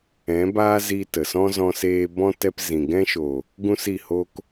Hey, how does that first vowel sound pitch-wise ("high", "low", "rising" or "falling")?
rising